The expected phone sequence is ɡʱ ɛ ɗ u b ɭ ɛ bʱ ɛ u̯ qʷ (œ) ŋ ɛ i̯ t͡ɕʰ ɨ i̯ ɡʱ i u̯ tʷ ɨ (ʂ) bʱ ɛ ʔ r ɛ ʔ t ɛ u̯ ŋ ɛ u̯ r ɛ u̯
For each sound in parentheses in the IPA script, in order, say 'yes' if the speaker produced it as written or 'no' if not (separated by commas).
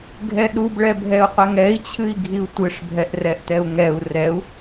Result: no, yes